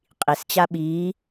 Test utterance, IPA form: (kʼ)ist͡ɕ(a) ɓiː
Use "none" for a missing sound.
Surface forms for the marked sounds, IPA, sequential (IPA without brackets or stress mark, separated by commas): qʼ, a